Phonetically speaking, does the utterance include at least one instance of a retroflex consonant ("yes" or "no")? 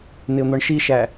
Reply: yes